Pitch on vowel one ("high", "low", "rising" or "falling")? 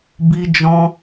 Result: high